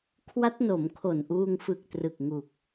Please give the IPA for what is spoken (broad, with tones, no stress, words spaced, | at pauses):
kʰwa˦˥t̚no˩˦mkʰo˨˩nʔuː˧ŋ fɯ˨˩k̚trɯ˨˩k̚ ŋu˨˩k̚